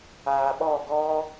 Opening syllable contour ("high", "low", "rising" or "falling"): low